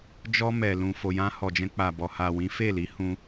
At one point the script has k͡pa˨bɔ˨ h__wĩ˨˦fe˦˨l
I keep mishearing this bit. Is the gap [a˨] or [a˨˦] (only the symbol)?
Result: a˨